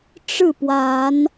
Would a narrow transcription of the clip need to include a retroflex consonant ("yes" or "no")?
yes